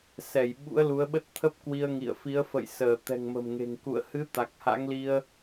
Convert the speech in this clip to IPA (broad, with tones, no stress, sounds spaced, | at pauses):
s ɛ˧˩ j ɓ ṵ˧˥ ə̯ l u˨˦ ə̯ ɓ ə˦˥ t̚ t̪ʰ ə˦˥ p̚ k w i˧ ə̯ ŋ ḭ˧˨ ə̯ f i˨˦ ə̯ f ə̰˧˨ j s əː˧˩ t̪ ɛ̤˨˩ ŋ m ə̤˨˩ m ŋ e̤˨˩ ŋ k ṵ˧˨ ə̯ h ɨ˨˦ t̪ a˨˩ k̚ h a̰˧˥ ŋ l i˧ ə̯